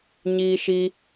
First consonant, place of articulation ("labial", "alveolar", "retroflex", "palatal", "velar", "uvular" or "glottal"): palatal